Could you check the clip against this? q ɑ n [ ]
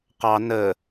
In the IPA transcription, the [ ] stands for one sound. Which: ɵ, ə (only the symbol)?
ə